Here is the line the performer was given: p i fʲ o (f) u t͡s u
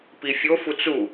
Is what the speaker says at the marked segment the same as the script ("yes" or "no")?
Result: yes